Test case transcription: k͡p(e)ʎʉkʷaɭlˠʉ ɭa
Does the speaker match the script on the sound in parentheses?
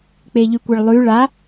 yes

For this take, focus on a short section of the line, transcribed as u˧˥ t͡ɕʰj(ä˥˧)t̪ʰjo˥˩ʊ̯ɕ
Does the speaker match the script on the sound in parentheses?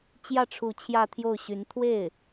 yes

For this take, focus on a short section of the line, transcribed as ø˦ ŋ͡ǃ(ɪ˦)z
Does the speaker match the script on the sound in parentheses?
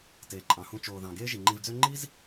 no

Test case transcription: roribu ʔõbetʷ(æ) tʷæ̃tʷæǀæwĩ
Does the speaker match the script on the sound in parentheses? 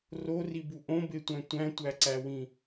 no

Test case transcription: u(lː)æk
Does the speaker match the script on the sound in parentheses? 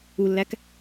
yes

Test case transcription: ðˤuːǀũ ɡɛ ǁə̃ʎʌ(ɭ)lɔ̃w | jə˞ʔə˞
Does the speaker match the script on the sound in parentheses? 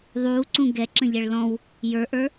yes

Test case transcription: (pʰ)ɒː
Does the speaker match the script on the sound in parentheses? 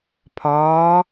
yes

